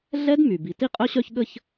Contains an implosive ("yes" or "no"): yes